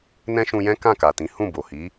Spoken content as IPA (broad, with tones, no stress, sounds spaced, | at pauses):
n ɛ̃˦ ʃ ũ˧ j ɛ̃˦ k ã˦˨ k a˨ t ĩ˨˦ h ũ˦˨ b o˨ h i˨˦